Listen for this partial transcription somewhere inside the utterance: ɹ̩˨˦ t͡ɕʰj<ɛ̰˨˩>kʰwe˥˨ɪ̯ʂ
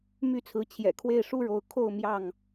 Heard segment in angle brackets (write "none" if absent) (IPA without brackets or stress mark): ɛ̰˨˩